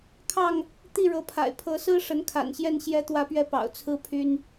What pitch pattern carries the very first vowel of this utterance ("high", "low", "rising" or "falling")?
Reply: falling